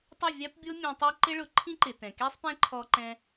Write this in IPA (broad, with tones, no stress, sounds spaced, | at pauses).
tˤ ɪ˦˨ vʲ a˦ p bʲ o˦ mʲ ẽ˧ tˤ ɛ˦ ǃ ɪ˦ ɭ ʊ˨˦ ǃʰ ĩ˦ ǃ ɪ˨ t ɛ̃˨ k e˦ sˤ p ɛ̃˦ ǃʰ ɔ˧ ǃ ɛ̃˧